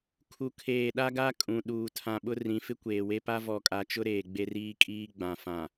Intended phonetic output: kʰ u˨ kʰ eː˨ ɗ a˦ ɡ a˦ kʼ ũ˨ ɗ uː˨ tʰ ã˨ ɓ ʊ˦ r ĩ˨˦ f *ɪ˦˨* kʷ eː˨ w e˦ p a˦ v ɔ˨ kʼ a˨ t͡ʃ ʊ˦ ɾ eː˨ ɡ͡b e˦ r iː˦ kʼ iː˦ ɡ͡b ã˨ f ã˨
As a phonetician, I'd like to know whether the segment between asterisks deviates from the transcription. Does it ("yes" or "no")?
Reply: yes